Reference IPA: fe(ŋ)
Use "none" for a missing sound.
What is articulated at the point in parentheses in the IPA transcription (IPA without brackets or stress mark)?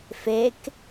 k